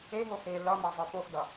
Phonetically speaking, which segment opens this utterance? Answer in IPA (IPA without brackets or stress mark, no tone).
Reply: e